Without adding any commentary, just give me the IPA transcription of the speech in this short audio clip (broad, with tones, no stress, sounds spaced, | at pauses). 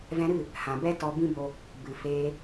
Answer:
v ɛ̃˧ ɾ ɨ˦˨ | h ã˨ b ɛ˦ t ɔ˧ b ĩ˦ b o˧ | b ɨ˨ f eː˧